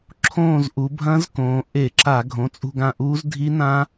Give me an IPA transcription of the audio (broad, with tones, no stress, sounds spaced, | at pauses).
ǁʰ õː˦˨ z ʔ u˩˧ bʱ ɐ̃˦˥ z k õː˩˧ ʔ e˧˩˧ ǁ a˧˩˧ ɡʱ õ˩˧˩ t͡sʼ ṳ˦˨ ɡ ã˦˨ ʔ uː˦˥ z dʱ i˦˥ n ã˦˥